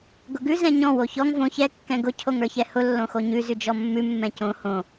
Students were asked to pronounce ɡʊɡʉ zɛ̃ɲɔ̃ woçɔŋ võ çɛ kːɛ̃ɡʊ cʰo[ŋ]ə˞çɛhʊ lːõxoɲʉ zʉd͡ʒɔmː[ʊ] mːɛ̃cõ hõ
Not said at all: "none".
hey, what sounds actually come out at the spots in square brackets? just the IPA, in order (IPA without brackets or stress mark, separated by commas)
ŋ, ʉ